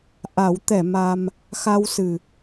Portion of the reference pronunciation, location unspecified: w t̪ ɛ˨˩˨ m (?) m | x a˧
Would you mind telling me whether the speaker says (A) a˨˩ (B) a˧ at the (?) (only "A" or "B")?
B